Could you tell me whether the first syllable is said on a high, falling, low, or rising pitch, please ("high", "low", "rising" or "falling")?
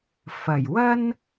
low